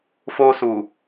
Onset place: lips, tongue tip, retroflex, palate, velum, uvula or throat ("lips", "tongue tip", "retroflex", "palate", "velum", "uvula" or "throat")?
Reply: lips